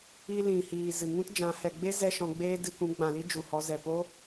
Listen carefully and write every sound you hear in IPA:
i˧ l ĩ˨ h iː˨ z ɨ˨ ŋ ũ˦ t d͡ʒ ã˨˦ h ɛ˨ ɡ͡b e˦ z ɛ˦ ʃ ɔ̃˧ ɡ͡b eː˦ d ɨ˧ k ũ˨˦ ɡ͡b ã˨ l i˦ d͡ʒ u˨ h ɔ˨˦ z ɛ˨ p o˦

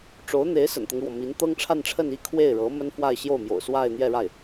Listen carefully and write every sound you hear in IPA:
ʈ͡ʂ o˧˥ ʊ̯ n̪ e˧˥ ɪ̯ s ə̰˨˩ n t̪ ɤ˦ ŋ ɻ w ɔ˩ m i˧˥ n t̪ ɤ˥ ŋ ʈ͡ʂʰ a˥˧ n ʈ͡ʂʰ ə˥˧ n i˥˧ kʰ w e˥˩ ɪ̯ ɻ ɤ˧˥ m ə˥ n f w a˥˧ ɪ̯ ɕ j o˥˩ ʊ̯ m j o̰˨˩ ʊ̯ s w a˥˧ ɪ̯ n̪ j ɛ˥˧ ɻ a˥˩ ɪ̯

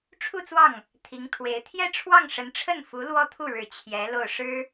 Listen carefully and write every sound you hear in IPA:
ʈ͡ʂʰ u˥˧ t͡s w ɑ˥˩ ŋ | t̪ʰ i˧˥ ŋ t̪ʰ w e˧˥ ɪ̯ t̪ʰ j ɛ˥˧ ʈ͡ʂʰ w ɑ˥˩ ŋ ʂ ə˧˥ n ʈ͡ʂʰ ə˥˩ n f u˧˥ l w ɔ˥ t̪ʰ u˥˩ ɻ ɻ̩˨˩ t͡ɕʰ j ɛ˧˥ l o˥˩ ʊ̯ ʂ ɻ̩˥

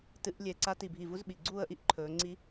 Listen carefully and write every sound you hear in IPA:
t ɨ˨˦ ʔ lʲ e˨˩ ǀ a˨˦ t i˨˩ bʱ i˨˩ v u˨˦ z ɓ i˨˩ ɡ͡ǀ uː˦˨ ə̯ ʔ i˦˨ ʔ ǃʰ ɵː˨˦ ŋ͡ǀ i˦˥

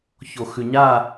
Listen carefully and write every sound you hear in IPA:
ç o x ʉ ɲ a

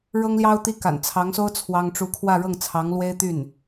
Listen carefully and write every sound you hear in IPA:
ɻ ɤ˥ ŋ l j ɑ˥ ʊ̯ t̪ i˥˩ k a̰˨˩ n t͡sʰ ɑ˧˥ ŋ s o˥ ʊ̯ t͡sʰ w ɑ˥ ŋ ʈ͡ʂ u˥ kʰ w ä˥˧ ɻ ɤ˥˩ ŋ t͡sʰ ɑ˧˥ ŋ l w e˥ ɪ̯ t̪ y˥˩ n

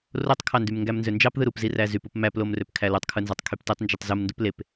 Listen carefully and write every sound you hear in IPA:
r o tˤ kʰ ɑ n d y m ŋ ɡ æ m n z ø n d͡ʒ ɑ p ð ɯ ɾ u p z i r æ z y p u p m æ p l o m r ø p kʰ æ l u tˤ kʰ ɯ n z ɑ tˤ kʰ y p t e tˤ n d͡ʒ y tˤ z u m n d u p l e p

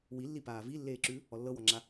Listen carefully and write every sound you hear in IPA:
w i lː i p aː v i lː eː ǁ ʉ | ɔ lː ɤ w ɔ ŋ͡ǁ a

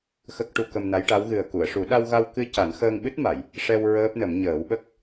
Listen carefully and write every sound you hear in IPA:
x ə˦˥ k̚ ʈ u˧ k ə˧ m n a˧˥ j ʈ a˧˥ w ɣ ɨ˨˩ ə̯ k u˨˩˨ ə̯ ʂ u˨˩˦ ɗ a˧ w ɣ a˧ w k ɨ˧ c a˨˩˦ n x əː˧ ŋ ɓ ɨ˦˥ t̚ m a˨˩˨ j | ʂ ɛ˧ w ɹ əː˦˥ p̚ n ə˨˩˦ m ɲ əː˨˩˦ w ɓ ə˦˥ k̚

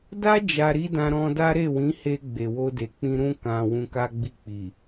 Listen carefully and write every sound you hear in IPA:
d a˦ d͡ʒ a˧ ɾ i˦ d ã˧ ɾ ɔ̃˧ d a˦ ɾ e˦˨ w ĩ˨˦ h e˧ ɡ͡b e˨ w o˧ d e˨ k͡p ĩ˧ ɾ ũ˧ k ã˨ w ũ˧ k a˦ ɡ͡b i˦˨ k͡p i˨

